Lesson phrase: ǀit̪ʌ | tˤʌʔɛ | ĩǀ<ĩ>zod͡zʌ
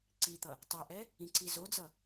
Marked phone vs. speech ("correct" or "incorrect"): incorrect